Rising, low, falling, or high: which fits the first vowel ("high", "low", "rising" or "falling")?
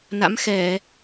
rising